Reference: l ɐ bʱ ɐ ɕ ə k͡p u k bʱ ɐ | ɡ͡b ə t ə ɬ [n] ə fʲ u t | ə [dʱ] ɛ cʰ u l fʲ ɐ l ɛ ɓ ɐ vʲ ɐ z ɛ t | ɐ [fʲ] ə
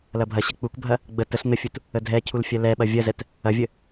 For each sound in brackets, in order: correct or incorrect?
correct, correct, incorrect

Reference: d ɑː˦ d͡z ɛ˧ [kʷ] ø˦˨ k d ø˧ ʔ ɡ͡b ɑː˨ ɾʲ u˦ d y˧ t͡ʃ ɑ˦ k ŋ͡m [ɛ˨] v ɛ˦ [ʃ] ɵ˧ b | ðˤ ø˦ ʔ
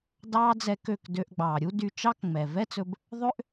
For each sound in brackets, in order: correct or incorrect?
incorrect, correct, incorrect

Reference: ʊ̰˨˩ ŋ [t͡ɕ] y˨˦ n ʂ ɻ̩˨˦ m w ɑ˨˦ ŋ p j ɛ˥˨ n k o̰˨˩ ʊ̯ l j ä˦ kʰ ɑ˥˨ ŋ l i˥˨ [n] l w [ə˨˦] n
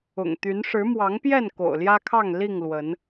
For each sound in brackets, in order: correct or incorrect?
incorrect, incorrect, correct

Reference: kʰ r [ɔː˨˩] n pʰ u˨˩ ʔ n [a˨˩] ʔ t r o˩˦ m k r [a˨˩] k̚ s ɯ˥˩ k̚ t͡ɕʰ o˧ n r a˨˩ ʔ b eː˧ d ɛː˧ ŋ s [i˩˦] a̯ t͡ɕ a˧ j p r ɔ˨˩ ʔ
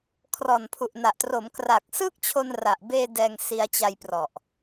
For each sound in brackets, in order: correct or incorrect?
correct, correct, correct, incorrect

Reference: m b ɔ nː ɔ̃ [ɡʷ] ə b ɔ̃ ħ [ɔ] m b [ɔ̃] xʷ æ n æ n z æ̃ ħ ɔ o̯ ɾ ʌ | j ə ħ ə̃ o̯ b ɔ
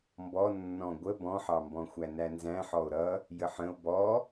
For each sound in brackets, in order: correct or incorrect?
correct, incorrect, correct

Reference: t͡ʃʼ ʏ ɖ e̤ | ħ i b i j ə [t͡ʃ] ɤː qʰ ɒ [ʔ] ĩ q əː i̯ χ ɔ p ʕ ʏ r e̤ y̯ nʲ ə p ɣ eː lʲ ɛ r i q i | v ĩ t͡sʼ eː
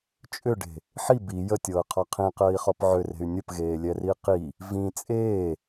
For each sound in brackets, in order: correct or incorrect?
incorrect, incorrect

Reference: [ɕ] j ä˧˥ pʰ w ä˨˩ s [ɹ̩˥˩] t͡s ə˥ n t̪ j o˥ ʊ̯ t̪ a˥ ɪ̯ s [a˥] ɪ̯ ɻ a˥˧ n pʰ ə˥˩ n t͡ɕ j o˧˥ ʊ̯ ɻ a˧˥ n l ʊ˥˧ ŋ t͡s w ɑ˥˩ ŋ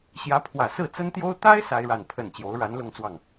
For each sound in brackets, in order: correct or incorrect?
correct, correct, correct

